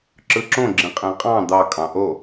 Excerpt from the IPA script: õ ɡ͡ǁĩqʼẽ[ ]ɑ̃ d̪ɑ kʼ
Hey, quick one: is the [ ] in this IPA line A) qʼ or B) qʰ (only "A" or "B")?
A